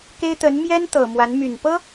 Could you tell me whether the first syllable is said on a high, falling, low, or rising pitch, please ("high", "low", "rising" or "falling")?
high